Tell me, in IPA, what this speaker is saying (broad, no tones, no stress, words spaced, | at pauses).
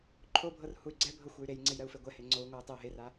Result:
ǃʰobʱɤr huy̯ɡ͡ǀɛbʱɤ xʷey̯ɾejŋ͡ǀej ɾɜu̯feɡʷɛhe ŋ͡ǀou̯ŋʷɜu̯ tˤeu̯ɦera